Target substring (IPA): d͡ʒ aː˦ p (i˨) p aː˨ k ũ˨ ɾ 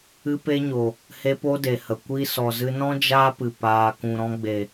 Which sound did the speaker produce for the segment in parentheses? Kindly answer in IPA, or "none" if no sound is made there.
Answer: ɨ˨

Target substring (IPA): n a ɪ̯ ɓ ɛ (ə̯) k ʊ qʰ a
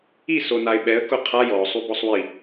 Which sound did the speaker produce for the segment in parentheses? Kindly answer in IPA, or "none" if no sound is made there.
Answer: ə̯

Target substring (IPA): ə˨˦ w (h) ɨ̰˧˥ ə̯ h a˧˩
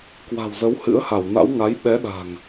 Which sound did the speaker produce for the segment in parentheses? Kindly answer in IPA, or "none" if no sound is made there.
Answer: h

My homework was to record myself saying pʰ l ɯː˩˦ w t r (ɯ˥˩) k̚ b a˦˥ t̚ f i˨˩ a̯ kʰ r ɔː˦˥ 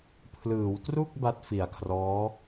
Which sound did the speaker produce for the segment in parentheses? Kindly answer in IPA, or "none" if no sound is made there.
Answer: u˥˩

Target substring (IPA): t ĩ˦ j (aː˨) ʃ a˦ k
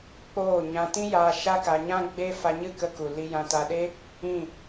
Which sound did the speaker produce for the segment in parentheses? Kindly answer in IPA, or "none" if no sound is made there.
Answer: aː˧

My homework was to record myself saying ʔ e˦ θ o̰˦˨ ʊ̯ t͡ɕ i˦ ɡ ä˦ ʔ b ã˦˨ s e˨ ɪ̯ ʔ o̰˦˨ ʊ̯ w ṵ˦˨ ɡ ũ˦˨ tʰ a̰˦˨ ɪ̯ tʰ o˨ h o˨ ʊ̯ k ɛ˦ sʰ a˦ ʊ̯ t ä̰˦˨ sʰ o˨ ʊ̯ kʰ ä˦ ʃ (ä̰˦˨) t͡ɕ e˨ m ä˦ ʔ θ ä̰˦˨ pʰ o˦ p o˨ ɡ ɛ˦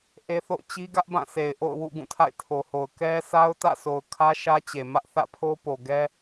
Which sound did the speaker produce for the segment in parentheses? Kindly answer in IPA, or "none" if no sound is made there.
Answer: ä˦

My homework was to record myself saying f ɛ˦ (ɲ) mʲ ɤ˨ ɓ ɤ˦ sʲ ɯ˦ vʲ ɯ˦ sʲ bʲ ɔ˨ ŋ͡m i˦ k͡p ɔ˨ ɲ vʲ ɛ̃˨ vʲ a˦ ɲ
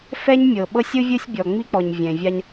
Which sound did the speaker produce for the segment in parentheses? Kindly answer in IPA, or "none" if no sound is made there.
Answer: ɲ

